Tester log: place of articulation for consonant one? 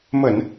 labial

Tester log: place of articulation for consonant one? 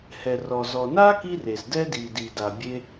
glottal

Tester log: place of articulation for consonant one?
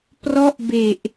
labial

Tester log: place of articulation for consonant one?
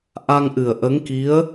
glottal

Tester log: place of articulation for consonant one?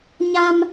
palatal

